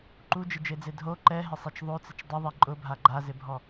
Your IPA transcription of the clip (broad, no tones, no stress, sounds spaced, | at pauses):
ǃ u d͡ʒ ɪ d͡ʒ e d͡z e dʱ o ǃ ɛ ɦ ɪ sˤ i t͡ʃ ðˤ o t͡s ɪ t͡ʃ dˤ ʊ ðˤ i ǃʼ ʊ bʱ a ɡ͡ǃ a z ɪ bʱ ɔ